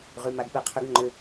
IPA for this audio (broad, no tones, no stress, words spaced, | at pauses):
ʁymaɡpɛqʰʏɡ ŋ͡ǃʏ